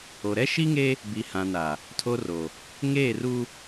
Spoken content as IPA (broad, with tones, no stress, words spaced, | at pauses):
o˨ ɾɛ˦ ʃi˦ŋe˦ | bi˨hã˨na˨ | tʰo˦ro˨ | ŋeː˦˨ru˦